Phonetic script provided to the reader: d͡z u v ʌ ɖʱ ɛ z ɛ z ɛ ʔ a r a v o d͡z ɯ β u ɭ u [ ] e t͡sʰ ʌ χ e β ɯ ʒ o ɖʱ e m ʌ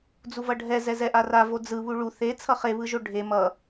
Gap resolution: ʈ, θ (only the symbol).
θ